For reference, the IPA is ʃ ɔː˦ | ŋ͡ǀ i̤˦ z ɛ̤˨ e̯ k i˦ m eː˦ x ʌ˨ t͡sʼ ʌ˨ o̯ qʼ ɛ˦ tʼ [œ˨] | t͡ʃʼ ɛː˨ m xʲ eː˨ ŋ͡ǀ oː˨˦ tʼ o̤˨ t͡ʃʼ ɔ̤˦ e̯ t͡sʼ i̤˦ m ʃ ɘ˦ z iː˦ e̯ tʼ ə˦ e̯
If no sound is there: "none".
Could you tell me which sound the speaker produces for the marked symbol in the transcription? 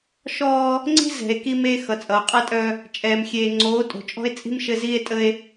œ˦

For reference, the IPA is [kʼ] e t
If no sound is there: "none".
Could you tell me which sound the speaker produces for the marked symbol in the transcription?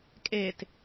kʼ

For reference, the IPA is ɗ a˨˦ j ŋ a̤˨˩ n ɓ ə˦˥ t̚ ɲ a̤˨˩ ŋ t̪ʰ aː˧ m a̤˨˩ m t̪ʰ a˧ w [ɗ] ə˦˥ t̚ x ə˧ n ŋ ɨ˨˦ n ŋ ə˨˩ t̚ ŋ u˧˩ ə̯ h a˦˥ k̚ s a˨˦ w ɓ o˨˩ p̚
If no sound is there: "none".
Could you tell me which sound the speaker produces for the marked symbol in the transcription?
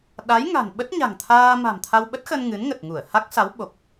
ɓ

